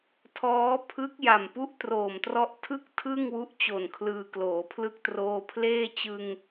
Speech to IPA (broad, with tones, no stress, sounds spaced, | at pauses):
tʰ ɔː˦˥ pʰ ɯ˦˥ k̚ j a˨˩ m p u˦˥ ʔ t r oː˨˩ m t r ɔ˦˥ ʔ tʰ ɯ˥˩ k̚ tʰ ɯ˥˩ ŋ w u˦˥ ʔ t͡ɕ o˨˩ n kʰ l ɯː˧ k l oː˩˦ pʰ l ɯ˥˩ k̚ t r oː˧ pʰ l eː˥˩ t͡ɕ ɯ˧ ŋ